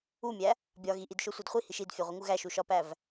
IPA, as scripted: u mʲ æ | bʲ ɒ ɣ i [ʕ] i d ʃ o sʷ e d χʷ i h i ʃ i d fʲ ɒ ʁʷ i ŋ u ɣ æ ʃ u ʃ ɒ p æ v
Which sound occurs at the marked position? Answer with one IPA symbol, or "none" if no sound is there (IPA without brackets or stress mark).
ʔ